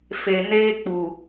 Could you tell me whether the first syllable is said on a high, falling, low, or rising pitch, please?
low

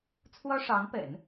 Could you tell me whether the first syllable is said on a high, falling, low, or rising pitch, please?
high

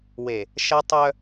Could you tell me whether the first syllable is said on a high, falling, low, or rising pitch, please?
low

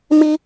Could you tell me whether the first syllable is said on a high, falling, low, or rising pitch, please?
high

